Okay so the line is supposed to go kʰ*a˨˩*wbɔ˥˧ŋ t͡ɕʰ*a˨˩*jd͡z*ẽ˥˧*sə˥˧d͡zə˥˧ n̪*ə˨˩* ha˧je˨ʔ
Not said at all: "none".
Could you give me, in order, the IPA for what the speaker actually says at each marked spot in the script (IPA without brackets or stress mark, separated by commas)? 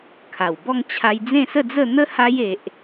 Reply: a˨˩, a˧, ẽ˥˧, ə˦